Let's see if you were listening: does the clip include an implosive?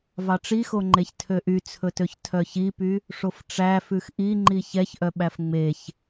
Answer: yes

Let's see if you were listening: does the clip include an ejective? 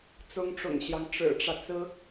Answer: no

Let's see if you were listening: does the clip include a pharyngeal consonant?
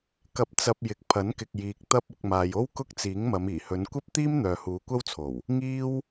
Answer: no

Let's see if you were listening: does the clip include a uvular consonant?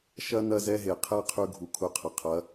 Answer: yes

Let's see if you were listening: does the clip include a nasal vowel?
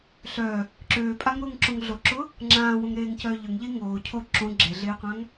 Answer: yes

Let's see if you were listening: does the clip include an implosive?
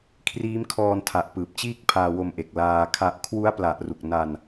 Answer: no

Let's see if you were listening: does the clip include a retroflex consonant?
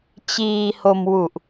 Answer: no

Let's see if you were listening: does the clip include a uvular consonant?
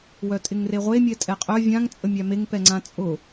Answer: yes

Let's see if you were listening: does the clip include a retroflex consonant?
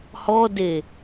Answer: no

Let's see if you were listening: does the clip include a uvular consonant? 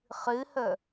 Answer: yes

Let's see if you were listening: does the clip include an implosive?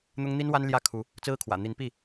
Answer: no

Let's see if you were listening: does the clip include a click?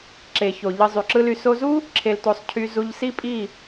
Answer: yes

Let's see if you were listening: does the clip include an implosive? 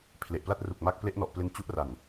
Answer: no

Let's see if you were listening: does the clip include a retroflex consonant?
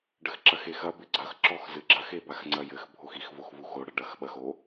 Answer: yes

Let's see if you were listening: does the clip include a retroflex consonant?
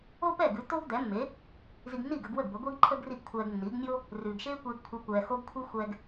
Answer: no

